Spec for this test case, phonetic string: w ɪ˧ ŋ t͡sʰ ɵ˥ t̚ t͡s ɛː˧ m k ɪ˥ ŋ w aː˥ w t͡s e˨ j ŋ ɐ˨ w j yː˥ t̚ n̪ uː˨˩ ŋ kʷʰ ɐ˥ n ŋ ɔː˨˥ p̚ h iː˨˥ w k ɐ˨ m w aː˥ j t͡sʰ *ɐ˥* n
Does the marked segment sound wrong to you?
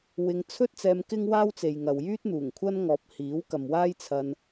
yes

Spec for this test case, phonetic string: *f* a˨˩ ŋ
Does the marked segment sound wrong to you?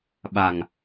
yes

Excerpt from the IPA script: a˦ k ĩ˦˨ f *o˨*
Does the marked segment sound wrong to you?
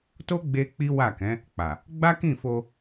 yes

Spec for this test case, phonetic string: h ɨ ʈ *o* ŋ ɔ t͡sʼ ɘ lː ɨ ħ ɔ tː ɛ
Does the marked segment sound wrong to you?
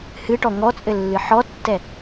yes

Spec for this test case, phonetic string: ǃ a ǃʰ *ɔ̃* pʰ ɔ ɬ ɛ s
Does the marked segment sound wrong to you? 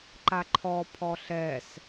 yes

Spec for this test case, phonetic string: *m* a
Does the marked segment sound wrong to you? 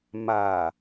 no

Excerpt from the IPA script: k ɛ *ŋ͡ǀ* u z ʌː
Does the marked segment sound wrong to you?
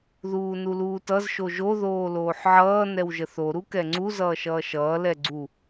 no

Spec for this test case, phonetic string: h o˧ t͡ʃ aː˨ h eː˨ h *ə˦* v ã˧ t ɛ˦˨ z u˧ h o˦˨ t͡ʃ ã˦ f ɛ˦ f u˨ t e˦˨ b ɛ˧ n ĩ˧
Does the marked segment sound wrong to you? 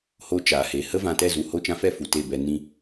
no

